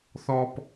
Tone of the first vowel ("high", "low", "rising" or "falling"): high